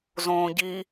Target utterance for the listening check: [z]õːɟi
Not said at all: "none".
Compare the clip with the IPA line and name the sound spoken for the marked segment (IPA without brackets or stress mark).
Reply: z